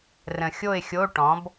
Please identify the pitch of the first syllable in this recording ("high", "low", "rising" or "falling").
low